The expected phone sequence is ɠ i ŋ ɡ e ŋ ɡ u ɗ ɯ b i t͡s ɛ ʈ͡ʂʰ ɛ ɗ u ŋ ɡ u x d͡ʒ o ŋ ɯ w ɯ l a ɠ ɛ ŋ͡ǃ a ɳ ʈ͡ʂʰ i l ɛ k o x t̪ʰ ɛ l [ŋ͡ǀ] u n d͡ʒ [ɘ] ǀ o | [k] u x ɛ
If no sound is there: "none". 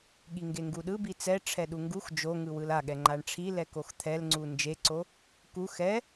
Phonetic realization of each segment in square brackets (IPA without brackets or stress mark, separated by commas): ŋ͡ǀ, e, k